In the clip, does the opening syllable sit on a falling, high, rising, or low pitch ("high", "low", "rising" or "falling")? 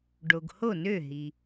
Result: low